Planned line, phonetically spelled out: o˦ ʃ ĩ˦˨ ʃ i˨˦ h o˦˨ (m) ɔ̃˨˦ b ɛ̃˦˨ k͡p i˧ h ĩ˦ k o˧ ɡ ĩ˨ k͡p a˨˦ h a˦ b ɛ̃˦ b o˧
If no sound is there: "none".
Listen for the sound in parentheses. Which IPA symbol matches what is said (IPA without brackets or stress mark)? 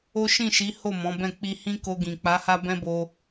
m